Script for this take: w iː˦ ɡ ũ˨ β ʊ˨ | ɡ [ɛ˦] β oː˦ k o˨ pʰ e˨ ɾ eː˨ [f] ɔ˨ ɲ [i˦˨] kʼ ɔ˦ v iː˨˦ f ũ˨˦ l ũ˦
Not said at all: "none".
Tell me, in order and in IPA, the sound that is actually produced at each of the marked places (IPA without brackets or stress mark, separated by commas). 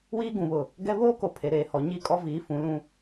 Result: ɛ˦, h, i˦˨